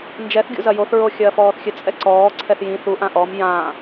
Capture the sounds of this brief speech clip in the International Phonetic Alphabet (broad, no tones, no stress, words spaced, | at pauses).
nd͡ʒɛθ ɡʲṵzɐjoθ ɹoxʲɐːfɔːθxʲɘ t͡sʼɛǀɔː ǀʰɛθjĩ θu ʔãʔɔm jã